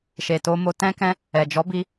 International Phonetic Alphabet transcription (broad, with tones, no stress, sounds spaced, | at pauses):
ʃ e˨ t o˧ m o˧ t ɛ̃˦ k ɛ̃˦ | ɛ˨ d͡ʒ ɔ˨˦ b i˧